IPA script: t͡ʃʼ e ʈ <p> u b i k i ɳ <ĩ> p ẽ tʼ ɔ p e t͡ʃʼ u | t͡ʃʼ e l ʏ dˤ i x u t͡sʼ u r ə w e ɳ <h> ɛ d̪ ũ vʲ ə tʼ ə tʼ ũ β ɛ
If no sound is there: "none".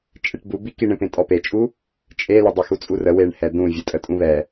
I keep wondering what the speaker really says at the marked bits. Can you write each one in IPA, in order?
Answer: b, ẽ, h

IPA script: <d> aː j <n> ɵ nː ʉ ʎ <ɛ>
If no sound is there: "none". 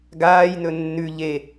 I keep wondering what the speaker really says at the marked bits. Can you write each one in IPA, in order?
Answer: ɡ, n, e

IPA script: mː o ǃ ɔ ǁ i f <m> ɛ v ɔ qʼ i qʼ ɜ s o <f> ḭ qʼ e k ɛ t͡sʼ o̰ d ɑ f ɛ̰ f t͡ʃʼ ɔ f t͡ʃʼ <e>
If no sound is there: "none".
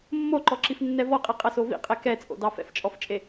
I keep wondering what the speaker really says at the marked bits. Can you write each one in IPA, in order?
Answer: nː, v, e

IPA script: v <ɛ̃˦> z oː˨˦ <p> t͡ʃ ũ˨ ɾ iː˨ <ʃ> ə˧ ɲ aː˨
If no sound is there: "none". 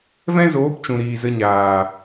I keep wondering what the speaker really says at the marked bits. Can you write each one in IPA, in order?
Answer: ɛ̃˦, p, z

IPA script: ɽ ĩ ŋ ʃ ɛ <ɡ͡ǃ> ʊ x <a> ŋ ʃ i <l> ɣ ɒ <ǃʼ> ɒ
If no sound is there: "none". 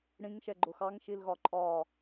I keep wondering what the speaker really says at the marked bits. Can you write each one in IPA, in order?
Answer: ɡ͡ǃ, ɑ, l, ǃʼ

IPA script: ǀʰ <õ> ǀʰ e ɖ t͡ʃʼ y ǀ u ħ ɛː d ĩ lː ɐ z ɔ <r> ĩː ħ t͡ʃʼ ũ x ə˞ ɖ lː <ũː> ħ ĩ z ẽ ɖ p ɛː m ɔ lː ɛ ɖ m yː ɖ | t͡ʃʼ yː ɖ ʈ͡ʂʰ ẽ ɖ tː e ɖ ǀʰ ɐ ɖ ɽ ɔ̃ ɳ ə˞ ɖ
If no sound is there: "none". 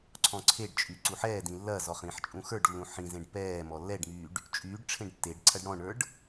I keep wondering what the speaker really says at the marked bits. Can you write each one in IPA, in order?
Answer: ɔ̃, χ, ũ

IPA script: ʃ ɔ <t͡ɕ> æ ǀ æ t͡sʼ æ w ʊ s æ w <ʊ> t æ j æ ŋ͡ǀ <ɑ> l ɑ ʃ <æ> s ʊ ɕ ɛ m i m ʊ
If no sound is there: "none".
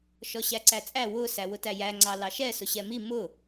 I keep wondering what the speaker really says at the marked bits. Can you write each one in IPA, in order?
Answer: ɕ, ʊ, ɑ, ɛ

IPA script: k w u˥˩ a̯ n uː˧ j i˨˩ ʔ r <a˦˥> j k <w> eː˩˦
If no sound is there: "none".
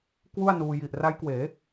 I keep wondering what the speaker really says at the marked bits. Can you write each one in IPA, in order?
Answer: a˦˥, w

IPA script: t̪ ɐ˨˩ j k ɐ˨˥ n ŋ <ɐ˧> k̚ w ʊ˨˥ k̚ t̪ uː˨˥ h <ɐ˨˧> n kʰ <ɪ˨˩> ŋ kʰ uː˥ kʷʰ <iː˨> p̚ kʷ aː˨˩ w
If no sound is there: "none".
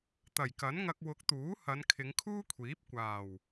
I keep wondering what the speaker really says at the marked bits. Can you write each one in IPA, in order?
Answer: ɐ˧, ɐ˨˧, ɪ˨˧, iː˨˥

